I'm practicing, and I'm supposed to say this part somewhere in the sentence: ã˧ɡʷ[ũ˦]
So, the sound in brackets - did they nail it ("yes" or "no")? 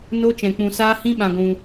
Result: no